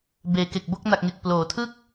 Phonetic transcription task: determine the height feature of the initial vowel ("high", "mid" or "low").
mid